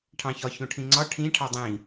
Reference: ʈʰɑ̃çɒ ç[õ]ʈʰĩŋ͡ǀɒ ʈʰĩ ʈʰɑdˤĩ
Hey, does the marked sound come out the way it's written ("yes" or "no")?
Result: yes